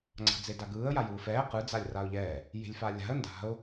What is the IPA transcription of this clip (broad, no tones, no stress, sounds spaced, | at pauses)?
ŋ͡ǀ a̤ d͡z e d a ɡ ɯː ə̯ j a j ɯː f ɛː q ɯ d͡z a lʲ r a ʊ̯ ʎ ɛː | j e̤ lʲ f a lʲ a̤ ə̯ n d a̤ ʊ̯